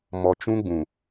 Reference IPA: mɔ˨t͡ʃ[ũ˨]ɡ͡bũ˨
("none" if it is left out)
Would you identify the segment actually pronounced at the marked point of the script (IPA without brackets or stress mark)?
ũ˦